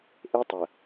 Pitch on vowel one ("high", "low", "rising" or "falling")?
high